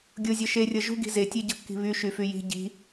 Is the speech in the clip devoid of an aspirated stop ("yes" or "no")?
yes